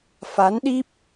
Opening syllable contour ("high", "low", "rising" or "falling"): rising